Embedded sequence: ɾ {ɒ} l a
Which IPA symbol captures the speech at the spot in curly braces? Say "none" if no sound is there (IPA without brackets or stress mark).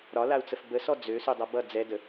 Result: ɒ